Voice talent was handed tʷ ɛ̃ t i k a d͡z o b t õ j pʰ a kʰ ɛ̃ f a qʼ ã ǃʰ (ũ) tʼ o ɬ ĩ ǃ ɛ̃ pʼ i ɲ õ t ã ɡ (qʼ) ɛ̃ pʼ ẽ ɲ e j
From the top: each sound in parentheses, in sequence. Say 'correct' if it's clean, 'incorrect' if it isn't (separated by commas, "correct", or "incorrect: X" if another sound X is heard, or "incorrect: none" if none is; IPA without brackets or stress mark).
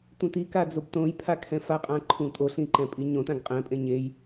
correct, correct